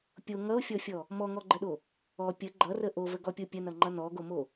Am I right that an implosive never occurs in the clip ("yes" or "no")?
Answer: no